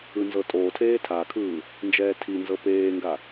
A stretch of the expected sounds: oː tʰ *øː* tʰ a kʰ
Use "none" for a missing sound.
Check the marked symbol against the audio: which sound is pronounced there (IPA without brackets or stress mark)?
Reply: eː